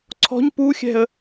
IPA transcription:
ǀʰ ɔ̤ ɲ p u xʲ ɛ̤ ə̯

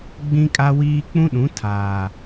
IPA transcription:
ɡ͡b ĩ˦ kʼ a˦ w iː˦ k͡p ũ˦ ɗ ũ˨˦ tʰ aː˨

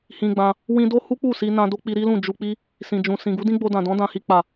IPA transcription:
h ĩ˧ ɡ͡b ã˧ | w ĩ˧ d o˦ h u˦ k͡p u˦˨ s i˧ n ã˧ d o˦ k͡p i˧ ɾ i˦ l ũ˦˨ d͡ʒ u˧ k͡p i˦ | s ĩ˨ d͡ʒ ũ˨ s ĩ˨ ɡ u˨˦ d ĩ˦ ɡ͡b o˧ d ã˨ d ɔ̃˨˦ d ã˧ h i˧ k͡p a˨

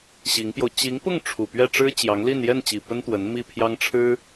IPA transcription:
ɕ i˧˥ ŋ p j o˧ ʊ̯ t͡ɕ i˧˥ ŋ p ʊ˥˩ ŋ ʈ͡ʂʰ u˨˩ p ɥ ɛ˥˩ ʈ͡ʂ ɻ̩˥ t͡ɕ j ɑ˧˥ ŋ l i˥˧ n j ɛ˥˩ n t͡ɕ i˨˩ p ə˥ n t̪ w ə˧˥ n m i˥˩ pʰ j ɑ˥ ŋ ʈ͡ʂʰ ɻ̩˥

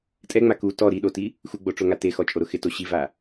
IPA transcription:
tʼ ɛ ŋ͡m a k u t ɔ ɾ i ɗ o t i | x u ɡ͡b o ʈ͡ʂ o ŋ a t e x ɔ t͡ʃʼ o ɾ ʊ x ɪ t o ɕ i v a

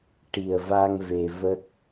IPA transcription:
ʈ i˨˩ ə̯ v a˧ ŋ v e˧ v ə˦˥ k̚

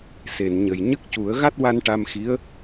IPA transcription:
s e˨˩˨ n ɲ ə˨˩ j ɲ ə˦˥ k̚ c u˨˩˦ ə̯ ɣ a˦˥ t̚ w a˧ n ʈ a˧ m x i˧˥ ə̯

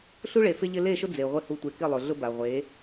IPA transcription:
ɬ u˦ ɭ e˨ f ɪ˦ ʎ ɪ˦ l e˦˨ ʃ ʊ˦ d͡z e˨ ʁʷ ɪ˦ h u˨ tʷ e˨ k ɪ˦˨ lˠ ʊ˨ ɮ ʊ˦ b a˨ ʁʷ e˨˦

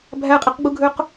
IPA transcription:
bʱ æ qʼ i q ɡ͡b u ɡʱ ø q

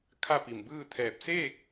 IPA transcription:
kʰ a˥˨ p i˧˩ m b ɯː˥˨ t̪ʰ ɛː˧˩ p̚ s eː˥˨ k̚

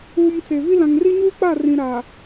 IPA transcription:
uː˨ m t͡s e˨ v i˦ l ã˨ ŋ r i˦ ɲ uː˦ k͡p a˦˨ r ĩ˨ ɾ a˨

